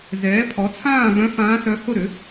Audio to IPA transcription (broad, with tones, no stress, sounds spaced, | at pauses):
z ɛː˩˥ pʰ ɔ˩˥ t͡sʰ ãː˥˩ v œ̃˧˥ f ãː˧˥ s œ˧˥ h ʊ˥˩ ɾ ʏ˩˥